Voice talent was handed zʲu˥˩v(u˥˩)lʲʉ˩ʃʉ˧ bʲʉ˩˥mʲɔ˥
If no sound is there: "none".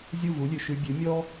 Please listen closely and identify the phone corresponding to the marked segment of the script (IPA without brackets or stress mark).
u˩˥